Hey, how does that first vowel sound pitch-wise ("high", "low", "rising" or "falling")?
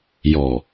low